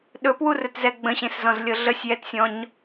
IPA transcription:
ɗɵpwurɵtzɛ ɡ͡bə̃ɕẽszɔ̃zlʲɤ ɮəsʲjɛtsʲɔ̃ɲ

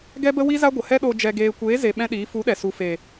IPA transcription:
ɡɛ˦bə˦wi˦za˦ ɡʷə˨hɛ˦ɗo˧ d͡ʒɛ˧ɡeː˧ kʷeː˨˦ze˨ ɓɛ̃˦ɗiː˨˦ fu˨˦ɗɛ˨ su˨fe˨

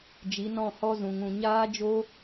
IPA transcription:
d͡ʒi˨˦nɔ̃˦˨ hɔ˧zũ˨ŋũ˨ ɲaː˦d͡ʒo˦

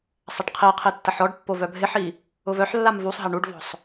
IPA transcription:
sˤaʈqʰiqʰi tːɐħɔɖpːo vœbʱɪħi | ʊvœħlːam vusˤɦɐ ɳuɖvɔ̤sˤ

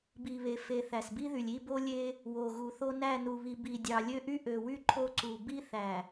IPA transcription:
bi˨βe˨ fe˨ θæ˨sbi˦ðy˨lʲ i˦˨ bo˦lʲe˦ | wo˨ɣu˨θo˦ næ˦˨nu˨βi˨ bi˨ dʲɑ˨lʲø˦ʔy˦ ʔø˨wy˦ ǃʰo˦ǀu˨ bi˦θæ˨

